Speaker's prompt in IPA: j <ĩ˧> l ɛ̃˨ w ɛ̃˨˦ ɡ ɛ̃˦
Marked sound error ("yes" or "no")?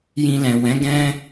no